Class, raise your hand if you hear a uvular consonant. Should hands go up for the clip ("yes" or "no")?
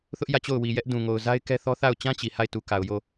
no